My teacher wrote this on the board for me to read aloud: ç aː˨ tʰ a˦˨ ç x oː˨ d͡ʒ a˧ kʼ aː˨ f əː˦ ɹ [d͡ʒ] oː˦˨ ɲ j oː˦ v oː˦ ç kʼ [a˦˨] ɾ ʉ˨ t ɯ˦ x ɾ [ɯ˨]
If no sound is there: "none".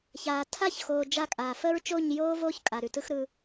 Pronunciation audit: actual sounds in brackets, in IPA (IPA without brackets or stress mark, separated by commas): t͡ʃ, a˨, ɯ˧